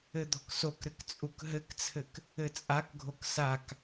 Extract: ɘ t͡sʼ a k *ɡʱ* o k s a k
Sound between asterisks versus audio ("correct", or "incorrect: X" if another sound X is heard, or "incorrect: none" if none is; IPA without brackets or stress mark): correct